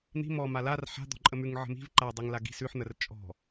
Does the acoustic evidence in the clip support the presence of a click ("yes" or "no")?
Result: yes